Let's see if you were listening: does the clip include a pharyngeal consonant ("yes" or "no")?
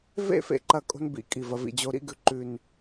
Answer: no